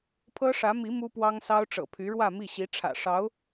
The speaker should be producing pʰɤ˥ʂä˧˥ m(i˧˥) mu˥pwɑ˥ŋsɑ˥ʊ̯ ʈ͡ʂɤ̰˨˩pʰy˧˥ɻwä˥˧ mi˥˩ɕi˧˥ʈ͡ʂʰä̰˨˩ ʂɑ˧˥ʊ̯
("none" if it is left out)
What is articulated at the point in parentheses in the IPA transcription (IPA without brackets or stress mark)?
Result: i˧˥